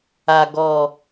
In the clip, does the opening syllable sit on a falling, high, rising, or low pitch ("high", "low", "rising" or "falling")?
low